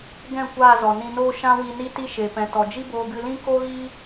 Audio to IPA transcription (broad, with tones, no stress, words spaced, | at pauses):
ɡɛ̃˦˨ kʷaː˦˨zɔ˨nĩ˧noː˦ ʃã˦wi˧ ni˦ti˦ʃe˨pɛ̃˨ tɔ˨d͡ʒi˦boː˧ ɡɨ˧lĩ˦ ko˦ɣi˦